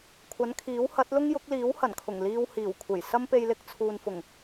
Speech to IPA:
kʷʰɐ˨˥nkʰiː˨˥w hɐ˨˥t̚lʊ˥ŋjʊ˨˥k̚liː˨˥w hɐ˨˩nkʰʊ˨˩ŋ liː˧w hiː˨˩wkʷʰe˨˩j sɐ˥mpe˧jlɪ˧k̚ t͡sʰuː˨nfʊ˨˩ŋ

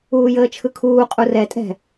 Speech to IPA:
uːjəːt͡ʃʰɯkʰuː qʼurɛ tʼɛ̤

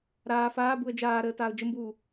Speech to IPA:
ɾaː faːbuə̯ d͡ʒaːɾəː taːʊ̯d͡ʒəmbuː

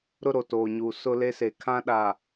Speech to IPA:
ɾʊ˦ɾo˨toː˨ɲuː˨ sʊ˦le˦se˨ kʰã˦ɗa˨

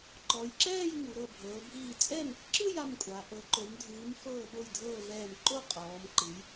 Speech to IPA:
ǃɔ˩˧jǁɛː˥˨j ŋu˩˧ɾɤ˧˩bʱɤː˩˧ bʱiː˧˩t͡sʼɛ˥˨m | ǁɯ˥˨j a˩˧˩mkʷʼa˩˧ ʔɤ˩˧ǃo˩˧mdʱɯː˩˧m fɤː˧˩ɓo˧˩jdʱɤː˧˩ vɛː˧˩m ǃo˥˨ qʼɔː˩˧mǃɯ˩˧j

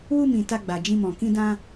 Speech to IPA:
wu˧mĩ˨ ta˧ɡ͡ba˨d͡ʒĩ˧mɔ̃˨ kĩ˧dã˧

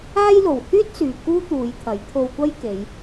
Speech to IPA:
aː˥jlo˨w hyː˥t̚syː˨ kuː˥t̪uː˨˧jt̪ʰɐ˨˥j t̪ʰo˧wkʷɐ˥jke˨˧j

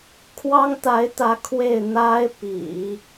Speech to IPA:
kʰwɑ˥ŋt̪a˧˥ɪ̯t̪ä˧˥ kʰwe˥˩ɪ̯n̪a˥ɪ̯ pḭ˨˩˦

